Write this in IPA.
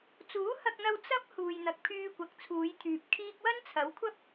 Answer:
t͡s uː˨˥ h ɐ˧ k̚ n̪ ɐ˧ w t͡s ɐ˥ p̚ h uː˨ j n̪ ɐ˨ k̚ pʰ yː˧ kʷ ɐ˨ k̚ t͡sʰ uː˨˧ j t̪ʰ yː˨ p̚ kʰ iː˥ k̚ w ɐ˥ n t͡sʰ ɐ˨˥ w kʷʰ ɐ˥ p̚

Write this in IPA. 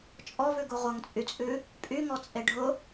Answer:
t͡ʃʼ ɔ v ʉ ɡ u ʁʷ ʌ ŋ t͡sʼ y t͡sʼ ʉ | pʼ y ŋ ɔ t͡sʼ e ɖʱ ʊ

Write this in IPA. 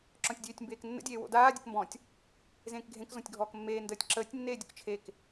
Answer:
ǁ ɔ̃ tʲ dʲ øː tʲ m b eː k nː ə̰ dʲ eː w o̰ d aː dʲ ə k m b ɔ̃ tʲ | z ẽː k ɡʱ ẽ k z ɔ̃ tʲ ɡʱ ɔː k mː eː n d əː tʲ ǁ əː tʲ nː eː dʲ ʊ k t͡ʃʰ e k

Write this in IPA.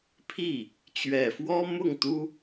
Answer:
pʰ i˥˩ | t͡ɕ ɥ ɛ˨˩ f w ɔ˥ m ʊ˥˩ ŋ t̪ u˥

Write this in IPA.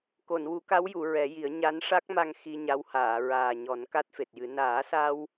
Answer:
k o˨˩˨ n w u˨˩˦ k a˧˥ w j u˨˩˨ ɹ ɛ˨˩˦ j i˨˩˦ ə̯ ɲ a˧˥ n ʂ a˦˥ k̚ m a˧ ŋ x i˧ ɲ a˧˥ w h aː˨˩˨ ɹ aː˨˩ ɲ ɔ˨˩˦ n k a˦˥ t̚ f e˨˩ t̚ j ɨ˨˩˦ n aː˨˩˦ s a˧ w

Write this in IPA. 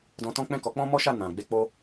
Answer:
d ɔ̃˧ t ɔ̃˦ k͡p ɛ̃˦˨ k ɔ˨˦ k͡p ɔ̃˦ m ɔ˦ ʃ a˦˨ n ã˨ ɡ͡b e˧ k͡p o˦

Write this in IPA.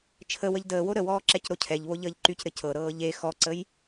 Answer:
t͡ʃʰ ə w ə ʎ d əː w o ɾ ə w ɔː ǁ ɛ c ɾ o cʰ ɛ ʎ β o ʎ əː ʎ ǃ y c ɾ ɘ c ɤ ɾ ɤː ʎ e x ɔ ǀ ə j

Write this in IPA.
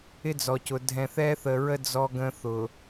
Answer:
ɪ˦ d͡z ɔ˨ c ʊ˨ dʱ ɛ̃˨ θ ɛː˦ θ ə˨ ɹ ə˦ d͡z ɔ˦ ɡ ə̃˦ θ ʊː˨

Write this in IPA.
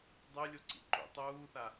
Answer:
dˤ ɨ lʲ o ǀ ḭ ǃ ṵ tˤ uː θ a

